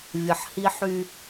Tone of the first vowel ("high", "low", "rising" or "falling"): low